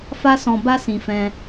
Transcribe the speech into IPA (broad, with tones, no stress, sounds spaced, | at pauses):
f a˦ s ɔ̃˧ b a˦ s ĩ˧ f ɛ̃˧